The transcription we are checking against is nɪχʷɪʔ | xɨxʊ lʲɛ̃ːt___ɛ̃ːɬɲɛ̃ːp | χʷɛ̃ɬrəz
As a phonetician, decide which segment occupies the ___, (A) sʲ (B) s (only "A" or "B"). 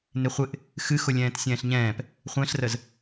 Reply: A